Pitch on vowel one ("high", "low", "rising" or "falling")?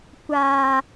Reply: high